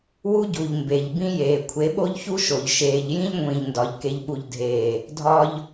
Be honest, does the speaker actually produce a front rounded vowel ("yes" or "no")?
no